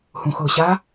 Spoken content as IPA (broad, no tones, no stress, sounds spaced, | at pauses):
h ũ x ʊː ɕ a